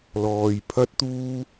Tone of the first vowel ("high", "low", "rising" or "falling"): low